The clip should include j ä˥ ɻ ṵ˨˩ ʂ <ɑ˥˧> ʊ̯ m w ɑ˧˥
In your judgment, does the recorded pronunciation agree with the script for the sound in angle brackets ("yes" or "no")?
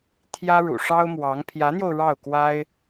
no